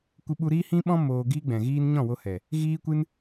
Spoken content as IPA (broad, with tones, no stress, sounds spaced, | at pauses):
kʷ ɨ˧ ɓ u˧ ɾ iː˦ h ĩ˦ ɓ ɔ̃˦ m oː˧ ɡ iː˦ ɡ͡b ɛ̃˨ ɣ iː˦ n ɲ ɔ̃˦˨ w o˧ h ɛ˨ | ɣ iː˦ kʷ ɨ˦ n